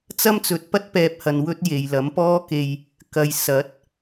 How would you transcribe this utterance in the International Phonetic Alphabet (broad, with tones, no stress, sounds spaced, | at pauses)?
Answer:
t͡s ɐ˥ m t͡s ɵ˨˥ t̚ p ɐ˥ t̚ p ɛː˧ p̚ h ɐ˨ n w ɵ˥ t̚ j e˨ j l ɐ˨˥ m p ɔː˥ k e˧ j | k ɐ˨ j s ɐ˨˥ t̚